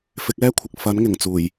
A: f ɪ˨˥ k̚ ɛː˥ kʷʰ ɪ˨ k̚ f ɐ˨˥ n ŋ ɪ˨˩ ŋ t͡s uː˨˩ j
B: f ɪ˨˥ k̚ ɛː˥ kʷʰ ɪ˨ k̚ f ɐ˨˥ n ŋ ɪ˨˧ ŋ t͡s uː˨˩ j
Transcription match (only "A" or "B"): A